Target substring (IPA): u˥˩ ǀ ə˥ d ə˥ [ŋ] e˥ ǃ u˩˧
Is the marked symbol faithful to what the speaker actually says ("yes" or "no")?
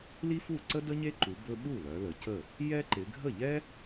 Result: no